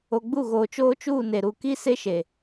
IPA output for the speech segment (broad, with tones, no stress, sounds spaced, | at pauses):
o˨ ɡ͡b u˦˨ ɣ oː˨ t͡ʃ oː˦ t͡ʃ uː˦˨ n e˨ ɾ u˨ k i˦ s e˦ ʃ e˨